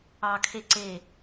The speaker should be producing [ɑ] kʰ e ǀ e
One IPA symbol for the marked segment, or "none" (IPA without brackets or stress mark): ɑ